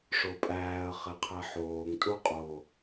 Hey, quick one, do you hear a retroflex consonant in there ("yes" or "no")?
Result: yes